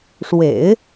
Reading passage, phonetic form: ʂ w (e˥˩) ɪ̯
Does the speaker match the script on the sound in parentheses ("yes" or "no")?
no